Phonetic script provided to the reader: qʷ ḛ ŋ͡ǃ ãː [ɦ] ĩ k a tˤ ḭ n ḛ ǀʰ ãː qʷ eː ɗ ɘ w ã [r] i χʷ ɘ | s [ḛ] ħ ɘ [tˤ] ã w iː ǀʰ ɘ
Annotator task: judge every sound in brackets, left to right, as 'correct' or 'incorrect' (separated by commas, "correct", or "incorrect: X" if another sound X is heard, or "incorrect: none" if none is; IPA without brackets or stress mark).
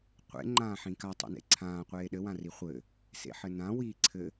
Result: incorrect: ħ, correct, correct, incorrect: n